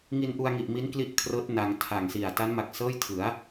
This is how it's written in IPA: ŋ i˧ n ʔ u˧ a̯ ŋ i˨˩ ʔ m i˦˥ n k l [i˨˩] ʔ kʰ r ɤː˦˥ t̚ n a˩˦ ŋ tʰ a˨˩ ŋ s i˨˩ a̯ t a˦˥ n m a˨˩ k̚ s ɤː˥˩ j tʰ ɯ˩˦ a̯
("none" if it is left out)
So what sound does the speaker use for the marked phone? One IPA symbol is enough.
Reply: i˥˩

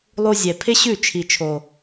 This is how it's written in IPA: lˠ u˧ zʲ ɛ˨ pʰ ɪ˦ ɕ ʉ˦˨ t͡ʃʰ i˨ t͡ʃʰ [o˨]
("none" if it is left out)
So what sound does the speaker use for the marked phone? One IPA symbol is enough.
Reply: o˨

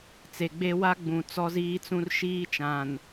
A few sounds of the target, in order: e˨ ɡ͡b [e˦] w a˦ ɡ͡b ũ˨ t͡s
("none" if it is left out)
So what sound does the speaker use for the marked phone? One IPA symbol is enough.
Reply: e˦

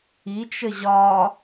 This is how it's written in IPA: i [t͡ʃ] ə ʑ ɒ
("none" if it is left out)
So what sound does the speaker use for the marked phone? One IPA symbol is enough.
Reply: t͡ʃ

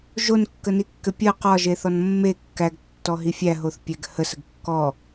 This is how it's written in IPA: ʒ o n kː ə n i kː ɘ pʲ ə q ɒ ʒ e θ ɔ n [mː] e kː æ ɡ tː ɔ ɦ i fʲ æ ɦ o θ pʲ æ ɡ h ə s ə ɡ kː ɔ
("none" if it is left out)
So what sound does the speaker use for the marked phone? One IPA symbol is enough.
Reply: mː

